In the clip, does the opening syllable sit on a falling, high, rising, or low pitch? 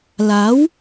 rising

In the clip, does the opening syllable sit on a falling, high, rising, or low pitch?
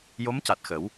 rising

